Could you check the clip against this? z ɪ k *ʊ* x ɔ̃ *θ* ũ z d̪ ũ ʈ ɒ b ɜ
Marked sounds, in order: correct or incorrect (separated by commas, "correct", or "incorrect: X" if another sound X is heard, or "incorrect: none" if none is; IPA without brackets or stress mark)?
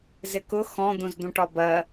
correct, incorrect: d̪